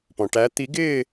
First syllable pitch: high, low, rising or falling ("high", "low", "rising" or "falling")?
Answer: low